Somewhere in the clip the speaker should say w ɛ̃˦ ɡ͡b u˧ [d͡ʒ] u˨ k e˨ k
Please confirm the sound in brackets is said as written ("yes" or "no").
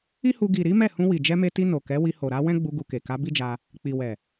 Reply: no